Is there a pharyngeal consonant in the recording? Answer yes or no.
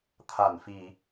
no